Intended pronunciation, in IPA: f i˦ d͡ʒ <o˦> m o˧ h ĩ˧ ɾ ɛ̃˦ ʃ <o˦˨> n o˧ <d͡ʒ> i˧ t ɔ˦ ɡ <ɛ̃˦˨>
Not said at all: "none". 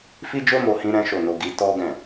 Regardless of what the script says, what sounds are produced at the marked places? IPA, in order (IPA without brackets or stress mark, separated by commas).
o˦, o˦˨, ɡ, ɛ̃˦˨